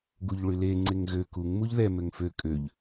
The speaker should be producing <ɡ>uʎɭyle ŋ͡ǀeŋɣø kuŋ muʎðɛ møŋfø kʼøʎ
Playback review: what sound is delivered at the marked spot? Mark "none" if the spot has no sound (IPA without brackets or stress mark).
ɡ